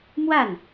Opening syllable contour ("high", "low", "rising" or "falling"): falling